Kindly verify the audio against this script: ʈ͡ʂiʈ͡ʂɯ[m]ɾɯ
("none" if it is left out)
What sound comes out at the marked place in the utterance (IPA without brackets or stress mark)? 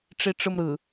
m